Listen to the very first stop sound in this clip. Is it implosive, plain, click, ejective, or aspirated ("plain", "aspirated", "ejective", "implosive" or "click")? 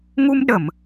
implosive